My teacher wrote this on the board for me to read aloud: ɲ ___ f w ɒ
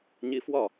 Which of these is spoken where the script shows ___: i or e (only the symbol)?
i